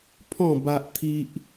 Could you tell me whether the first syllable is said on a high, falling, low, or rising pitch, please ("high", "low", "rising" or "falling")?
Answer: falling